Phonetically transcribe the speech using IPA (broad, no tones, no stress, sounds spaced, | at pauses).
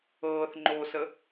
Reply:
ɤː θ ŋ͡ǃ o s ə